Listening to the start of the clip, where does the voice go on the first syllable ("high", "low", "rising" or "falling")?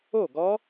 falling